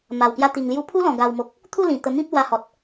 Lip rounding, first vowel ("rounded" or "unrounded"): unrounded